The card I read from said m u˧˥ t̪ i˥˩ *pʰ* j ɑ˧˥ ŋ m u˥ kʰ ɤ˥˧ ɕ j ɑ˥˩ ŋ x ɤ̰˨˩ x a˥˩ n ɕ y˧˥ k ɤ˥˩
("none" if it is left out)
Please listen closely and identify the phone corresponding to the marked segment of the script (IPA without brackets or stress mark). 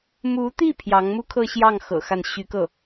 pʰ